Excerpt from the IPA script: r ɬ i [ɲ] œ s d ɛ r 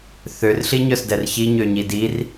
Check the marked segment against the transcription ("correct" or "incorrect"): correct